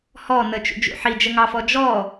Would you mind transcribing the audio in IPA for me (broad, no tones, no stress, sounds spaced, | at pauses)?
h ɔ n ə t͡ʃ ṵ d͡ʒ ṵ ħ i d͡ʒ ə ŋ ɑ f ɔ d͡ʒ ɔ